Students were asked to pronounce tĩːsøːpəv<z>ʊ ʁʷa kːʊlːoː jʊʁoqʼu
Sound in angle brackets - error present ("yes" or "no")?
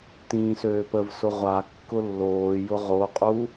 yes